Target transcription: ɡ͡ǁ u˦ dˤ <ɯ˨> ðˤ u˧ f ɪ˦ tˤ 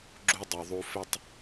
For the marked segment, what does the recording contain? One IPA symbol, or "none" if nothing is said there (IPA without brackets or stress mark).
u˨